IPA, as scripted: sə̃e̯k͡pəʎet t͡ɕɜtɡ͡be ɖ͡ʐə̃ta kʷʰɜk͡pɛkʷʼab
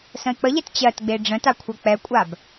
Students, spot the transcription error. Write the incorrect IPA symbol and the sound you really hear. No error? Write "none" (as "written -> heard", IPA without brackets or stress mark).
none